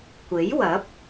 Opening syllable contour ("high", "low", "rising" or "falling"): rising